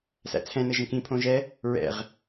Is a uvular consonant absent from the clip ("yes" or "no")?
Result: no